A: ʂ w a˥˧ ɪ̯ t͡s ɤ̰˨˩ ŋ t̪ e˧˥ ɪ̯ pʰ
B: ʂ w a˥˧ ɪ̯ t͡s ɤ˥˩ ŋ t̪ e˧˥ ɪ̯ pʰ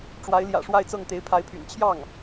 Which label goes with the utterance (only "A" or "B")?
B